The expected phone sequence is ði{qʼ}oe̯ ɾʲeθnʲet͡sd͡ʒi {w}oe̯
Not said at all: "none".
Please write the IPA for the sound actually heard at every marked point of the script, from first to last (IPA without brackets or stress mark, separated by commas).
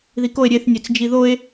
k, ð